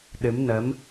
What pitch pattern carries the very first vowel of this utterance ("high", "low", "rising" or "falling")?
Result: rising